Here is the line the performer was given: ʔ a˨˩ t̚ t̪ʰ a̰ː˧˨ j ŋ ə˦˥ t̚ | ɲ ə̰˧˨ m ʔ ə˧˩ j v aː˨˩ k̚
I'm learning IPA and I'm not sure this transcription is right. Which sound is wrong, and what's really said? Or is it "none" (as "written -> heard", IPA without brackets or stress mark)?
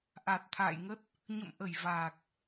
none